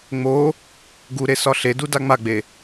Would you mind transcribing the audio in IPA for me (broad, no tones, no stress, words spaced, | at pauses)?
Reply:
ŋ͡mo | ɡuɾesɒ ɬeduda ŋ͡maɡ͡be